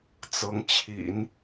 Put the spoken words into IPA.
t͡s ɤ˧˥ ŋ t͡ɕʰ ḭ˨˩˦ n

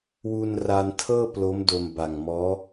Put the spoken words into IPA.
w u˧ n r a˧ n tʰ ɤː˥˩ p l o˦˥ m d o˧ m b a˨˩ ŋ m ɔː˦˥

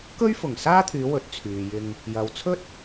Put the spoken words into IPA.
k ɵ˥ ɥ f ʊ˨˩ ŋ s aː˥ t̪ʰ yː˨˧ w ɵ˨˥ t̚ t͡sʰ yː˨ j ɪ˧ ŋ | j ɐ˨ w t͡sʰ ɵ˥ t̚

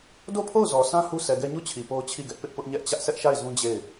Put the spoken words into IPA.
d o˦˨ pʰ o˦˨ ʊ̯ z ɔ˨ s ã˦ h u˦ sʰ ɛ˨ ɡ ɛ˦ ɲ u˦˨ t͡ɕʰ i˨ p o˦ ʊ̯ t͡ɕʰ i˦˨ ɡ ɛ˦ ʔ p ɪ˦ ʔ p ʊ˦ ʔ ɲ ɛ˦ ʔ t͡ɕ ä˦ ʔ s ɛ˦ ʔ ʃ a˦˨ ɪ̯ z ũ˦ d͡ʑ e˦˨ ɪ̯

